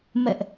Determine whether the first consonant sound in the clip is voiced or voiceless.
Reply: voiced